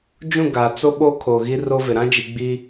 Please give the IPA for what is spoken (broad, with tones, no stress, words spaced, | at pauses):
d͡ʒũ˦˨ ɡa˨ t͡so˦ɓo˦ kʰoː˨ɣi˦ro˦vɪ˨ ɾã˦d͡ʒi˨ɡ͡bi˦